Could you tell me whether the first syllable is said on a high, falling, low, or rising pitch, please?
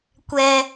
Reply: low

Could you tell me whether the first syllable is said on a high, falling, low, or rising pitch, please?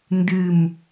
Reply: falling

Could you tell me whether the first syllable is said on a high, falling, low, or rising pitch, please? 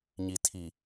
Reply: low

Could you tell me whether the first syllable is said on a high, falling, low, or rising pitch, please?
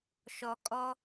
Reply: low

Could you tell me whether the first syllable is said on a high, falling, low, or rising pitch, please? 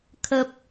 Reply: high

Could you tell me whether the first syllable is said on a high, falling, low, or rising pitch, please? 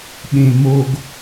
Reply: low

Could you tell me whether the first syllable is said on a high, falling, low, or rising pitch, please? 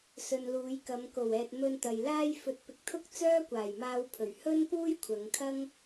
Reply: low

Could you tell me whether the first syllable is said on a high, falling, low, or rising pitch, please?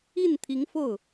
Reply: falling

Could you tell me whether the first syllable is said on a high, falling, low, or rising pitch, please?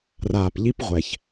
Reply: low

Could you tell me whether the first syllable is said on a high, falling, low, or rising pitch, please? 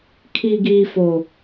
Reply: high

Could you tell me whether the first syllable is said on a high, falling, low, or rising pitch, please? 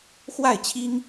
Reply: falling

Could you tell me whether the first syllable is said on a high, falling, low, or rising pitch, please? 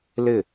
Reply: falling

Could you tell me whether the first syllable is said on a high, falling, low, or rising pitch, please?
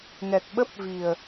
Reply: low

